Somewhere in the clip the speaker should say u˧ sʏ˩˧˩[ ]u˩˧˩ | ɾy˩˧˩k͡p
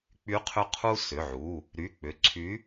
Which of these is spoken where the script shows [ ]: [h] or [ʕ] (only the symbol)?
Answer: ʕ